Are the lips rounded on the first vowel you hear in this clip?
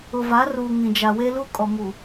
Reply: yes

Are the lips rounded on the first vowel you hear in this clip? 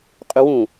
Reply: yes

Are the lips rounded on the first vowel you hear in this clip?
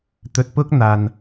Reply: yes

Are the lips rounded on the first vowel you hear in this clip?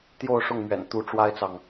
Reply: yes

